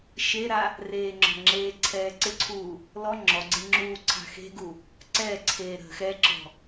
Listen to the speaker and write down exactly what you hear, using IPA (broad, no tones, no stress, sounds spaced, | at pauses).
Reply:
ʃ e ɾ a | r eː ŋ͡ǁ ɔ̤ ŋ͡ǁ eː ǀʰ ɛː ǀ ɪ ǀʰ uː | l ɔ ŋ͡ǁ ɔ ɡ͡ǀ e ŋ͡ǁ uː ǀʰ a̤ x e̤ ɡ u | ǀ ɛ ǀʰ eː ɾ ə̤ x ɛ ǁ ɔ̤